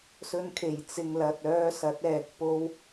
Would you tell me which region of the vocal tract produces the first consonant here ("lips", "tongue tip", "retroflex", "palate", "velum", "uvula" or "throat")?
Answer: tongue tip